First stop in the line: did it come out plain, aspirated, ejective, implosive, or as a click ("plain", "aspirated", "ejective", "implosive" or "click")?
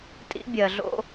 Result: ejective